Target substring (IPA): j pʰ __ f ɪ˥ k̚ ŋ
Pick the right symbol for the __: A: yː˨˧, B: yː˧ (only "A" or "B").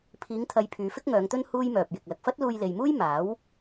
A